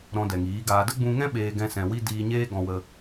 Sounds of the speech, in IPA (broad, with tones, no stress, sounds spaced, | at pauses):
ɾ ɔ̃˧ d ɛ˨ ŋ iː˨˦ ɡ aː˧ d ə˦ ɡ͡b ũ˧ ŋ ɛ̃˦ ɓ eː˧ ɡ ɛ̃˧ s ɛ̃˨ w i˧ d iː˧ ɲ eː˦ ɡ ɔ̃˧ w ə˧